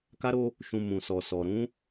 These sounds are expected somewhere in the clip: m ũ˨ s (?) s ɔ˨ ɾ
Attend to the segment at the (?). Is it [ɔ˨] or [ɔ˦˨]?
ɔ˨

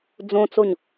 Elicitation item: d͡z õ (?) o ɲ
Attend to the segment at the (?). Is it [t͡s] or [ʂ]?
t͡s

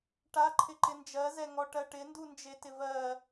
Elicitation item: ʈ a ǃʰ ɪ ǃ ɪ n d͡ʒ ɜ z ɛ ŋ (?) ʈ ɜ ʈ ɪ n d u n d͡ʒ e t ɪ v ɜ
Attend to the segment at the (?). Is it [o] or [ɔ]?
ɔ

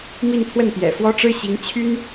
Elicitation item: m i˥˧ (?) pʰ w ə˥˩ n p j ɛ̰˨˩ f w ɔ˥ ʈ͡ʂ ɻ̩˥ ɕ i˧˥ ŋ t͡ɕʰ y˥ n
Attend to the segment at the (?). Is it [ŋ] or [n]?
n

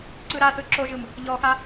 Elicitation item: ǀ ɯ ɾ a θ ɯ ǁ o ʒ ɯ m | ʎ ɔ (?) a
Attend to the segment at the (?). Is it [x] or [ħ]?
x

